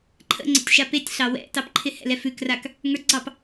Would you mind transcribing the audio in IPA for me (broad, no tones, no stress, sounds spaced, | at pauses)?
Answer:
ǃʰ ə̰ ŋ͡ǀ ə̰ tʲ ʃ a p e tʲ ɬ ɑ w ɛ̰ t ɑ p ǃʰ ɪ h ɛ̰ l ɛ f ʉ k r a k | ŋ ə˞ ɡ͡ǀ ɑ p